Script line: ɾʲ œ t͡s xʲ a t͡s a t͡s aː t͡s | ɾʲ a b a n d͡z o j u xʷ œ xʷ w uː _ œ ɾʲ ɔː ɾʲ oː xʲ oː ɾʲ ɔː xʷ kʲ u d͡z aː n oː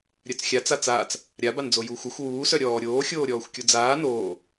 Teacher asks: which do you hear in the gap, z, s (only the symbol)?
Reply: s